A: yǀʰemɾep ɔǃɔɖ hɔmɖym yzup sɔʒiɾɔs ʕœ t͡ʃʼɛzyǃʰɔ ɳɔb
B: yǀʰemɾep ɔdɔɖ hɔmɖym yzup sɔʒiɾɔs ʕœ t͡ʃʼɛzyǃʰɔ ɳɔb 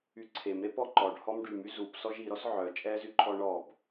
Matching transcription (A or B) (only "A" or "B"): A